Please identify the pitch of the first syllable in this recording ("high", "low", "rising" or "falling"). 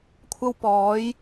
high